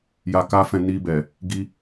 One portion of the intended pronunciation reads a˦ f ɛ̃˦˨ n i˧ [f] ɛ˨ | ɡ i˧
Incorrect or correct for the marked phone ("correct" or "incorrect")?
incorrect